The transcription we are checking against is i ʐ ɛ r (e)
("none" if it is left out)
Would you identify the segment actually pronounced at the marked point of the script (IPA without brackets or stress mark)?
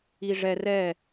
ɛ